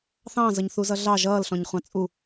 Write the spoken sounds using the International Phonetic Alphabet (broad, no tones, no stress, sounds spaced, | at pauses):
θ ɑ̃ z ʌ ɲ θ u z ʌ ɮ ɑ ʒ ʌː l ɬ ɔ̃ ɲ χʷ ɑ̃ t͡sʼ u